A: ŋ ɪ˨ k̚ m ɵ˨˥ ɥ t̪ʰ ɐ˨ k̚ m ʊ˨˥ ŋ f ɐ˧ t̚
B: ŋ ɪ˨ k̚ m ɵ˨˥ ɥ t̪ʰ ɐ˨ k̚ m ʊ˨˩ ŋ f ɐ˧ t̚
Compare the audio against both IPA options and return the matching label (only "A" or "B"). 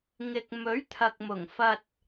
B